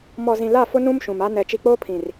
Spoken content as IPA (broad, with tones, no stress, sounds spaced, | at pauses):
m ɔ˨ z ĩ˨ l a˦˨ f ʊ˦ n ũ˦ m ʃ ũ˨ m a˦ n ɛ˨ t͡ʃ i˨ k͡p oː˦ pʰ ĩ˨ r